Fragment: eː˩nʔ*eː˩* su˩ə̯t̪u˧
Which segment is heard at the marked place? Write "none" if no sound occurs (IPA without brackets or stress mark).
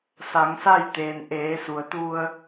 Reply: eː˩˧